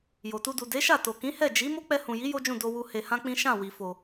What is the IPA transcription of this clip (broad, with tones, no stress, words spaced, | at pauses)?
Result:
jo˨tu˧du˨ de˨˦ʃa˦˨ to˨kĩ˨˦hɛ˦˨ d͡ʒi˨˦ mo˦k͡pɛ˧hũ˨ji˨˦ jo˦d͡ʒũ˦˨ do˧wu˧ he˧hã˦k͡pĩ˦ ʃã˦˨ wi˨fo˨